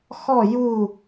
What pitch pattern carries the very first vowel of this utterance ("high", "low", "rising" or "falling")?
falling